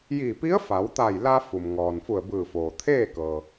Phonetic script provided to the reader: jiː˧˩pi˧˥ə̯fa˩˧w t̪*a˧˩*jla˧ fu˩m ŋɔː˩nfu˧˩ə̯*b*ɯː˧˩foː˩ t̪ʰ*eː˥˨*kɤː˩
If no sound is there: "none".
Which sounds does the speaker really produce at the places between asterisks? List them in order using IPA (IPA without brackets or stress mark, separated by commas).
a˧˩, b, eː˥˨